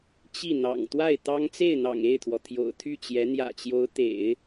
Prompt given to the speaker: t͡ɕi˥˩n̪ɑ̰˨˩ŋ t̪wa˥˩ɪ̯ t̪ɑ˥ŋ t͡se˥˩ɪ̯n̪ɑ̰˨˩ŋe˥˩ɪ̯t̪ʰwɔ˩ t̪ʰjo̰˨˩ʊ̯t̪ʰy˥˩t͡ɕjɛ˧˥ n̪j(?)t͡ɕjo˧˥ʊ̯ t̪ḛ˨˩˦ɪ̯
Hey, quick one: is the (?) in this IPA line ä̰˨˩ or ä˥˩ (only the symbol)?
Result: ä̰˨˩